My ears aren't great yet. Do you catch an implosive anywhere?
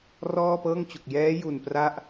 no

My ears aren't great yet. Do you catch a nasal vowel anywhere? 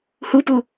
no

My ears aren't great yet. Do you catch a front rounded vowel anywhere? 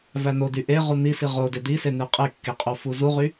yes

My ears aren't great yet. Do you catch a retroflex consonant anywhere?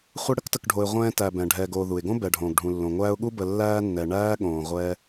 yes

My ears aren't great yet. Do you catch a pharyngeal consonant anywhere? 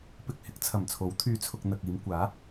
no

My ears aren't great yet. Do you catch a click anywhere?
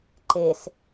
yes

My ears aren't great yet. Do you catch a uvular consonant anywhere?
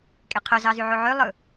yes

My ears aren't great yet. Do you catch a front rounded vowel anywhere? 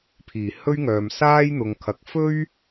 yes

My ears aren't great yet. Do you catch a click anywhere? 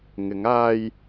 no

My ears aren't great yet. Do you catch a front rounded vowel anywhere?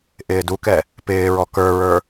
no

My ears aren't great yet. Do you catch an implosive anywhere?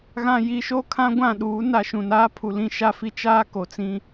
yes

